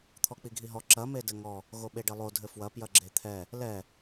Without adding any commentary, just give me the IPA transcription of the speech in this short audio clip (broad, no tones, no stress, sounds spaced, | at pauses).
t̪ʰ ɔ k͡p i ɡʱ i ɦ ɔ ǁ ɐ m e d ɘ ŋ ɔ | ɣ o ɓ e ɖ ɘ lˠ o dʱ ɘ f w ɐ p j ɐ ɡ͡ǁ e t̪ʰ ɛ | l ɛ